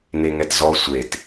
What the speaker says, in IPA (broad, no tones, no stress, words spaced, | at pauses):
neŋɛtzɔ sʷet